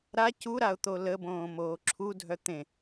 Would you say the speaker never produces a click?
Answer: no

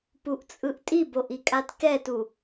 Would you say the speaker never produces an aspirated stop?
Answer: yes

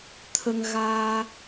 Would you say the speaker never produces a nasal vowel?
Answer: yes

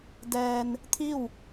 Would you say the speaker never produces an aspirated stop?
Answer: no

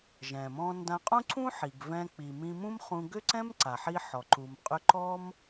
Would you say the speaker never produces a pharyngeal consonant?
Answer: no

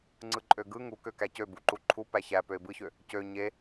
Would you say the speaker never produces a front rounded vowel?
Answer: no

